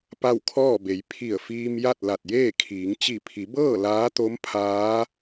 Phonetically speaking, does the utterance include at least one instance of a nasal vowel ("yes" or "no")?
no